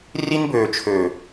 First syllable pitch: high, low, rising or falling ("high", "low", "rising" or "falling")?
high